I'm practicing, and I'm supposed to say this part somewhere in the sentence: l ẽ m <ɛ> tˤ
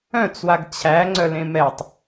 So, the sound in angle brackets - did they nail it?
yes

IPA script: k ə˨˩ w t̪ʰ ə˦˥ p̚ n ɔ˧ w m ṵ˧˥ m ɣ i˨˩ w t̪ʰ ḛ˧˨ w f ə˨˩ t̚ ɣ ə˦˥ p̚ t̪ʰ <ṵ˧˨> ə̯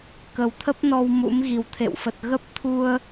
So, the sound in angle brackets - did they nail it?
no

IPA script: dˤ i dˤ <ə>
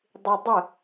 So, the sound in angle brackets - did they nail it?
yes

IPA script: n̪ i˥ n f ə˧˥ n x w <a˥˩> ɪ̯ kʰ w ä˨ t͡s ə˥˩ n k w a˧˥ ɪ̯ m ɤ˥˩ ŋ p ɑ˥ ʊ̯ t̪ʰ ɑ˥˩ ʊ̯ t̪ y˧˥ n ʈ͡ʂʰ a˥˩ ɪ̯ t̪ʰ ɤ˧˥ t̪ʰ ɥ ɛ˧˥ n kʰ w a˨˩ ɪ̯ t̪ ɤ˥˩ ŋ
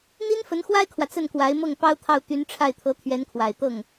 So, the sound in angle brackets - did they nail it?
no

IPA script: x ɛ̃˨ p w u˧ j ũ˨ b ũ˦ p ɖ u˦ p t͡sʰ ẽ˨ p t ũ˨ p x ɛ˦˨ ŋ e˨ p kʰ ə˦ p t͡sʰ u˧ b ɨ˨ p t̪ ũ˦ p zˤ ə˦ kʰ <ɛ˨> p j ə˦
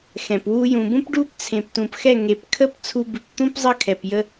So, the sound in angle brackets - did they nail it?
yes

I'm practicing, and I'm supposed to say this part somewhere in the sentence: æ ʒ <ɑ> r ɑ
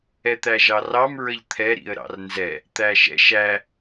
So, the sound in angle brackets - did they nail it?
yes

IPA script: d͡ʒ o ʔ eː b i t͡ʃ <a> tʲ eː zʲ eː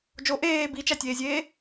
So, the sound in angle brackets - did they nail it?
no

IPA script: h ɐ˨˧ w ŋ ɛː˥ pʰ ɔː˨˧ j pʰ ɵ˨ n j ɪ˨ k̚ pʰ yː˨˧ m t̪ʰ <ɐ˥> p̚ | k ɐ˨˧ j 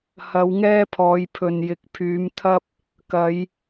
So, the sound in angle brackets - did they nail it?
yes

